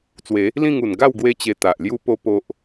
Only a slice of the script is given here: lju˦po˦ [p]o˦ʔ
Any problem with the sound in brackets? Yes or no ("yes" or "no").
no